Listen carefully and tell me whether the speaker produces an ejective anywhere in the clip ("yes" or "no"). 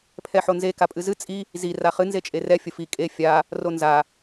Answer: yes